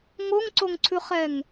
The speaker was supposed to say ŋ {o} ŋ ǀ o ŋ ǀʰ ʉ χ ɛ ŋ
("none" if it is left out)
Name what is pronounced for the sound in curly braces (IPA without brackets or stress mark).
o